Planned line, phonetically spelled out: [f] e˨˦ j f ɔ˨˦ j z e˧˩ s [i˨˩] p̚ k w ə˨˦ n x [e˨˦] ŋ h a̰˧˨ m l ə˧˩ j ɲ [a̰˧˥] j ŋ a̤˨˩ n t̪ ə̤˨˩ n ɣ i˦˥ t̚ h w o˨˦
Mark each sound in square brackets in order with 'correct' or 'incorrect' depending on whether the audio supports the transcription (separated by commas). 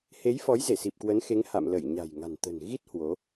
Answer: incorrect, correct, correct, incorrect